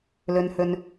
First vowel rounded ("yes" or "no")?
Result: yes